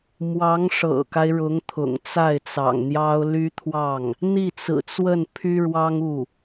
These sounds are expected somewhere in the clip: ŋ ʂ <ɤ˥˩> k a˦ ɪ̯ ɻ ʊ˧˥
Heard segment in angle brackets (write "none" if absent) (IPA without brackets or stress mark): ɤ̰˨˩